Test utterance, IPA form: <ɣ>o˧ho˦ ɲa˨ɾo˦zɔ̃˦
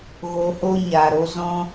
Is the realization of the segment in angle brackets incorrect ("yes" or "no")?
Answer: no